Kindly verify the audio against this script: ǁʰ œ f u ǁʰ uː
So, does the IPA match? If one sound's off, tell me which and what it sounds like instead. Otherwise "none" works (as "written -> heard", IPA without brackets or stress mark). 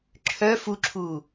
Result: none